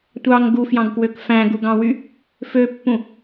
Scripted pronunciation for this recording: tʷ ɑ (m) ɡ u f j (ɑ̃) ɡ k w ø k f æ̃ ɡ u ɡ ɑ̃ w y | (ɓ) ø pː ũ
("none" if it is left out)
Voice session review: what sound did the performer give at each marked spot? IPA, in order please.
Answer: ŋ, ɑ̃, f

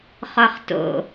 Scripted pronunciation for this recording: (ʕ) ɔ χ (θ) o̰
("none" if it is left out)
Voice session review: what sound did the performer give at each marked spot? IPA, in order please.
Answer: χ, t

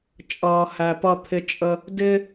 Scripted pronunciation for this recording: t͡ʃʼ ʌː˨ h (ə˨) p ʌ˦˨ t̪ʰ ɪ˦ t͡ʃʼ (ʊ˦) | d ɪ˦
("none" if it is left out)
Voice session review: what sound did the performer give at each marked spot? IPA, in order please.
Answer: æ˨, ə˦

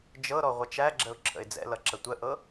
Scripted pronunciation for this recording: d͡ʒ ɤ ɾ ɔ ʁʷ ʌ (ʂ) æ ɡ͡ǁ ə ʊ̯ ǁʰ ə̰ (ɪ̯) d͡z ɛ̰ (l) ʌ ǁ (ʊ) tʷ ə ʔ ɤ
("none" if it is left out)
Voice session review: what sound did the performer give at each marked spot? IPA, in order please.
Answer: t͡ʃ, ɪ̯, l, ə

